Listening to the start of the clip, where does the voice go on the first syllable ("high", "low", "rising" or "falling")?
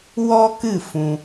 high